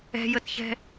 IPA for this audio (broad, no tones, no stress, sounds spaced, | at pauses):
ɛ̤ j ə t ç ɛ̤